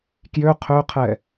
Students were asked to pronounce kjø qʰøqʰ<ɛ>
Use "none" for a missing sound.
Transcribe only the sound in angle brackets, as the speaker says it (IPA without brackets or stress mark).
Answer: ɛ